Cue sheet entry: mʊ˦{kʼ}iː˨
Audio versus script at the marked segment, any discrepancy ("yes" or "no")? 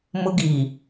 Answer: yes